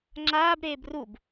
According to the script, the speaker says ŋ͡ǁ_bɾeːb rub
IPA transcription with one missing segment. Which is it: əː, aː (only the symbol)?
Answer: aː